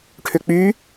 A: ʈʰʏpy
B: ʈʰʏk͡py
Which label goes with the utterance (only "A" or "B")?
B